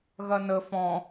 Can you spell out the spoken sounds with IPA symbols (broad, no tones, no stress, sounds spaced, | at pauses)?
ɣ ɐ n ə f ɔ̃